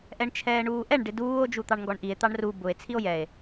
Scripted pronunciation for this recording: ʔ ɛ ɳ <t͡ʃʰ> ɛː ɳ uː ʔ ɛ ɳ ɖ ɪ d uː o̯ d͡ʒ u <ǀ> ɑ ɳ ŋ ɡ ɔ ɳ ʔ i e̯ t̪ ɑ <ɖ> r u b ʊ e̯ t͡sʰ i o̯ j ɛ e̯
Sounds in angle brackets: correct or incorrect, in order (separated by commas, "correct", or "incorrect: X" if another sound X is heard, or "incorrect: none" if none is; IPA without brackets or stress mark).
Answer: correct, incorrect: t̪, incorrect: ɳ